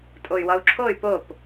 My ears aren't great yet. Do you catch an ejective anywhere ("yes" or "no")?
yes